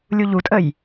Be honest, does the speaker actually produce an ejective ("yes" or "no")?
yes